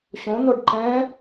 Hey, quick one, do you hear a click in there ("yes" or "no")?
yes